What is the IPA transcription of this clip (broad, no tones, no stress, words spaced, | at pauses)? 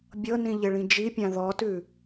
bʲɤnĩʎɪɭĩ d͡ʒipʲã ðɔtʉ